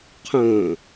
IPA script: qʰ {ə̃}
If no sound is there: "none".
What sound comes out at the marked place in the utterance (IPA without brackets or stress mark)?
ə̃